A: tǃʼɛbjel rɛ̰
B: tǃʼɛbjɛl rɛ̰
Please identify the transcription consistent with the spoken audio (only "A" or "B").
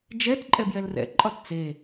B